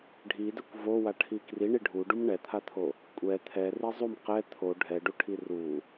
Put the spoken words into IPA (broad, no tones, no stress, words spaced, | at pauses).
ɖʱidɛkʷ vowaʈʰi kriɳi ɖʱuɖum ɳɛt̪ʰat̪ʰo | kʷʼɛ t̪ʰɛri zˤum qɛ t̪ʰo ɖʱɛɖuʈʰi ru